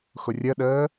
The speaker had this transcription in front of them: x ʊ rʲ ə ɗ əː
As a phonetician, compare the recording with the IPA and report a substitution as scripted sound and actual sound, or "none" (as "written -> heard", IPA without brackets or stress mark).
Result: none